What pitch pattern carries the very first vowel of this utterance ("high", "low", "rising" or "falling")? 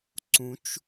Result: rising